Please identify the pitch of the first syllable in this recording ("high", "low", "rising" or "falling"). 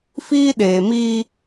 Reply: high